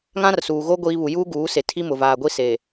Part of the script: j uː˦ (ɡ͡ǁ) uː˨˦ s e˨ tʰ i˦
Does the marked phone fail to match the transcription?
yes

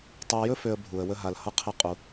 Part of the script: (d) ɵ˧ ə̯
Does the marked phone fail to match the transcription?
yes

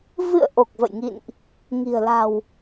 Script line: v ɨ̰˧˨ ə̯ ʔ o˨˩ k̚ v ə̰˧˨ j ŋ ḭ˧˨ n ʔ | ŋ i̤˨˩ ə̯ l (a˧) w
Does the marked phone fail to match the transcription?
yes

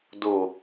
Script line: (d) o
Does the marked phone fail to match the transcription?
no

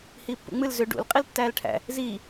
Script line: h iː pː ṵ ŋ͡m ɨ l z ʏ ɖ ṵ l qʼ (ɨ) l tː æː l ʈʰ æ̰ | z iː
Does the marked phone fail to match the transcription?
yes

